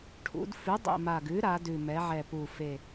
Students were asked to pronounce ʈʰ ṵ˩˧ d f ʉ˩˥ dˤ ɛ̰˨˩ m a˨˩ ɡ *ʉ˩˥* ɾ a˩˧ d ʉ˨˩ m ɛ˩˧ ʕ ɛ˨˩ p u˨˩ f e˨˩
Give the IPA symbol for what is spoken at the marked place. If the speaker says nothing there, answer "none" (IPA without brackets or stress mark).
ʉ˩˥